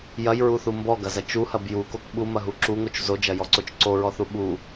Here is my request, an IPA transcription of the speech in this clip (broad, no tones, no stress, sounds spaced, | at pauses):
j ɐ j ɹ u θ u m b ɔ ɡ ɐ z ɐ t͡ʃ u h ɐ b j u k o k ɓ u m ɐ ɦ u ǁ u ŋ o t͡ʃ z o d͡ʒ ɐ j ɔ ǀ o t͡ʃ ǀ o ɹ ɔ θ u ɓ u